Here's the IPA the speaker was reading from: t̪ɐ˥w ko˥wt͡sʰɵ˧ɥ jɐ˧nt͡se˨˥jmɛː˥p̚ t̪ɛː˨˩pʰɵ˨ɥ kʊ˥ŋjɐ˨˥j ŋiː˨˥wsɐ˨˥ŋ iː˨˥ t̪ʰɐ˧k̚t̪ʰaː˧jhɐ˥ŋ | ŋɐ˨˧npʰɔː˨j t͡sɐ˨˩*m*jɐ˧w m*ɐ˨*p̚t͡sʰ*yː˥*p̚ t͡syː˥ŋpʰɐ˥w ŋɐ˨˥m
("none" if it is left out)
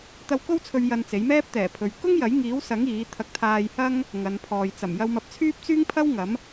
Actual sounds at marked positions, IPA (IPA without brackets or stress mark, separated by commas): m, ɐ˧, yː˥